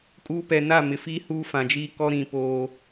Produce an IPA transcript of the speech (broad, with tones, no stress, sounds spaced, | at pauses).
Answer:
kʼ uː˦ p ɛ˨ n a˦˨ m ɪ˨ f iː˦ h uː˦ f ã˨ d͡ʒ iː˦ k ɔ˦ ɾ ĩ˨ p oː˦